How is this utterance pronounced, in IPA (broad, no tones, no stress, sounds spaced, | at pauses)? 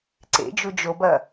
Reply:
ǀ ḛ d͡ʒ u d͡ʒ o b ɐ